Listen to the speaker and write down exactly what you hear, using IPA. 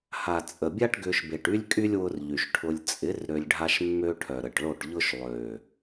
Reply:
h a˨ t͡sʼ ə˨ bʲ a˦ ʈ ɡ ʏ˧ ʃ b e˨ ʈ y˦ lʲ kʼ y˦ lʲ w ʊ˧ r ʎ y˨ ʃ ʈʰ ʊ˧ lʲ t͡sʼ ɪ˨˦ r ɾ ø˧ lʲ ɖʱ a˦ ʃ mː ø˦ ʈʰ œ˨ ɾ ə˨ ʈ ɭ o˦˨ ʈ ʎ ʊ˦ ʃ lˠ ø˨

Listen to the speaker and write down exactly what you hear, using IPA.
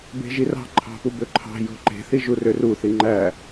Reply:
b e̤ ʒ i r ɑ̤ ǃʰ ɑ̤ p u b ø ǃʰ ɑ̤ j o̤ ǃ e̤ θ i ʒ u r ø r u θ i ŋ͡ǃ æ

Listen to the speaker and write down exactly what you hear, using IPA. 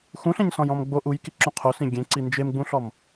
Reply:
x ũ ɬ ẽ ɲ s ɔ̃ j ɔ̃ m ɡ͡b o ʔ u j k i ǁ ũ qʰ o s ĩ ɡʲ ẽ ǀ i n d͡ʒ e m ɡ͡b ũ ɬ ɔ m

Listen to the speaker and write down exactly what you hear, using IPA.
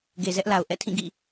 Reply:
ɡ e˨ z ɛ˦ ʔ l a˨ ʊ̯ ʔ ɛ̰˦˨ tʰ ĩ˦˨ ɡ ḭ˦˨

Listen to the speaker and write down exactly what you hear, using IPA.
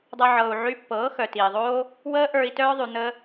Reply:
dˤ ɤ˧ ʕ ɤː˨ u̯ ʕ y˧ pː ɤː˨˦ x œ˨ t iː˨ ðˤ oː˦ | w əː˦ ʔ ə˞˧ i̯ t œː˦ ðˤ y˧ n̪ əː˦

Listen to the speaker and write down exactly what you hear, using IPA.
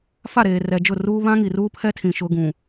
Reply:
f a˦˨ ɾ eː˨ r ɛ˨ d͡ʒ ʊ˦˨ r uː˦ β ã˦ ŋ i˨ r uː˦ pʰ ɛ˦ tʰ ĩ˨ ʃ ʊ˦ ɡ ũ˨

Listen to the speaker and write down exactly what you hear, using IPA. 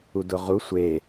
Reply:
u d ʊ ʁ u sʷ e

